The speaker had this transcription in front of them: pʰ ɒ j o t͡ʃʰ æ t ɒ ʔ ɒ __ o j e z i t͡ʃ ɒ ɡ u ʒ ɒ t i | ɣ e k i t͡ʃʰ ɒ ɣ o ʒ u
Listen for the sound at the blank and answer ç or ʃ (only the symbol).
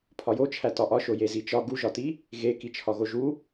ʃ